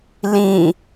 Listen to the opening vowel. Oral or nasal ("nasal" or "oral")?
nasal